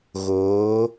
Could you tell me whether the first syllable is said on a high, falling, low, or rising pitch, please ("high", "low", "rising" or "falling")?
rising